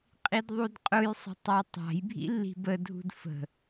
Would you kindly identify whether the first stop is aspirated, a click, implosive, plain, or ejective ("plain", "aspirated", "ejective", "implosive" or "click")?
ejective